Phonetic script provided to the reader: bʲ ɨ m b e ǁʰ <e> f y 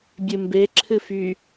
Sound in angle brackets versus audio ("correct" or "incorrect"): incorrect